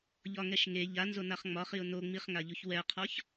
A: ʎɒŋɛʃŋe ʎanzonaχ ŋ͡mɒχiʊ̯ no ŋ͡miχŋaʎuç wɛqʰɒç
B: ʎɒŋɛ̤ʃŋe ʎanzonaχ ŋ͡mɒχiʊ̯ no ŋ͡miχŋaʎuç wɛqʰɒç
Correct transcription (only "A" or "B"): A